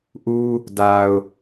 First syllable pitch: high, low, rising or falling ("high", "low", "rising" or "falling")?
high